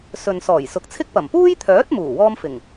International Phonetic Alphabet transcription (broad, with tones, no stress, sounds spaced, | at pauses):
s ɵ˨ n s ɔː˨˩ j s ʊ˨ k̚ t͡sʰ ɪ˥ k̚ p ɐ˨˩ m p uː˥ j t̪ʰ œː˨˥ t̚ m uː˨˩ w ɔː˧ m f ɪ˨˩ ŋ